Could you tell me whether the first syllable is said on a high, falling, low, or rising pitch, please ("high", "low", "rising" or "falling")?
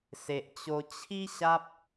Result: low